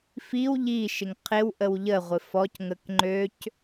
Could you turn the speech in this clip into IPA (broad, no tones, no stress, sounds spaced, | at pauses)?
f i w ʎ i ʃ ɪ ŋ qʰ ɪ w ʔ ə w ʎ ə ʁʷ ɪ f ɔ c ŋ ə k ŋ͡ǃ ø c